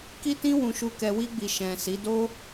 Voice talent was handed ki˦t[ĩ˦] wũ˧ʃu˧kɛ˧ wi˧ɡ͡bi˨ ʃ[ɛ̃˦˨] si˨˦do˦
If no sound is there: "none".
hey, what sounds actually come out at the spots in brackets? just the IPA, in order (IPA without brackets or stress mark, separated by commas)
ĩ˦, ɛ̃˨